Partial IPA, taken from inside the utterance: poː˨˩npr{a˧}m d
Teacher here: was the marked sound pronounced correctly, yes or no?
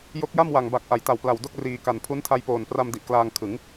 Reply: yes